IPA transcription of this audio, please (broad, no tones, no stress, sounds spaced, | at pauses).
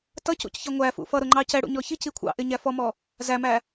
t ʌ c ṵ c ç ʌ ŋʷ æ f ṵ f ʌ ɾ ʊ ŋ͡ǃ ɑ c ɛ ɽ ṵ ɲ ɔ ç i c i kʷʰ ɑ̰ ʔ ɪ ɲ æ f ɔ m ɔ | z æ m æ